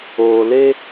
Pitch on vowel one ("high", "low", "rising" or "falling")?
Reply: low